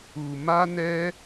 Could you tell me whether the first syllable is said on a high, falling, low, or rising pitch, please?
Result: low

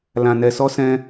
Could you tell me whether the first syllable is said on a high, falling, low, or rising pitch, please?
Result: low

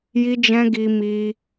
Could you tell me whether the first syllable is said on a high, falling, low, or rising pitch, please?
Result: high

